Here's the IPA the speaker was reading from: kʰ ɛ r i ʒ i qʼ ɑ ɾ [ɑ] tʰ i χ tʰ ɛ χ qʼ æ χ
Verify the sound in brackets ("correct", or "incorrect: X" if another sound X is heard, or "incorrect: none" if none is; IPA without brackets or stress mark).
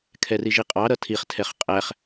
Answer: incorrect: ʌ